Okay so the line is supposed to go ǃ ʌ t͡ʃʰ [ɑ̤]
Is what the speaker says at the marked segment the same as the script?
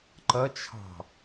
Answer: yes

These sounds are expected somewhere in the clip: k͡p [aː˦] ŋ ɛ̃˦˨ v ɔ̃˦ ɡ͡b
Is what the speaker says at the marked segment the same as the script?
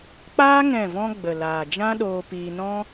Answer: yes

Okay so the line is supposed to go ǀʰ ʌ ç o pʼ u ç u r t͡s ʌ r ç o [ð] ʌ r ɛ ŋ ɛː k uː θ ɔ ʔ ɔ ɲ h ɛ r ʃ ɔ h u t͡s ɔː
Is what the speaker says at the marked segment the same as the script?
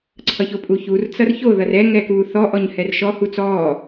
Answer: yes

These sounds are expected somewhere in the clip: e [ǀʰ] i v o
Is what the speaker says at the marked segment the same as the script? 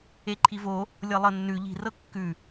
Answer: no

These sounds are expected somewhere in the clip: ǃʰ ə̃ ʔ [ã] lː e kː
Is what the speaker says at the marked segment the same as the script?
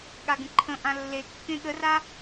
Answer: yes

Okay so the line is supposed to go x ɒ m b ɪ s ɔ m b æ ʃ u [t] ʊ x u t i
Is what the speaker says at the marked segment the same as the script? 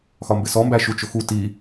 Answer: no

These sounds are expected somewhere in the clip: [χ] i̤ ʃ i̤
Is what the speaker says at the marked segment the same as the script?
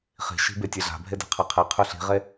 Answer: yes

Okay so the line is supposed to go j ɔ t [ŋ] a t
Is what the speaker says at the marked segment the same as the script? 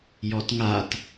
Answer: yes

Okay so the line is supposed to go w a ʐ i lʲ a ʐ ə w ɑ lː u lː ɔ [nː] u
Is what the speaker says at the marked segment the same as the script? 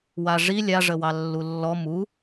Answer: no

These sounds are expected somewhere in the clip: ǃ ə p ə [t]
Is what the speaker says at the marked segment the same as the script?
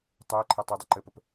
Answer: no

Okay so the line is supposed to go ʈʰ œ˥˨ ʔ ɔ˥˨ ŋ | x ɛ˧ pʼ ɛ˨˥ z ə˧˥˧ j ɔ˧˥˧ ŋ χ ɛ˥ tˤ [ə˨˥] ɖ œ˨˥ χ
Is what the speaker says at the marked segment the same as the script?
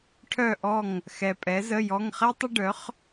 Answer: no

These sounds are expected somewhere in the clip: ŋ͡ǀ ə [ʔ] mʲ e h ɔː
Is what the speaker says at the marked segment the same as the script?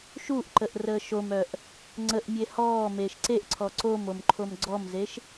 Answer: yes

